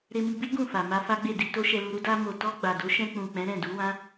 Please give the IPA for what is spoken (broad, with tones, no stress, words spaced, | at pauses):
ɾe˧mi˧ bi˦ ɡũ˦˨fa˨ma˧ fa˦ɡ͡be˦˨di˧ to˦ʃɛ˧lu˧ɾu˦ da˧mo˨tɔ˧ ɡ͡ba˨do˨˦ʃɛ̃˧k͡pũ˨ k͡pɛ̃˨˦ɾɛ̃˦˨du˨˦wã˦